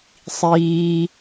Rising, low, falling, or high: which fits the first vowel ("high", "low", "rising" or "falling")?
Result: low